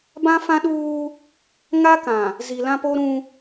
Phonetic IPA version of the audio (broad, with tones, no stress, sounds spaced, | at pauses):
b ã˦ f ã˦ ɗ uː˦ | ŋ a˦ k ã˨ | z i˨ l ã˦ p o˦ ɾ ũ˦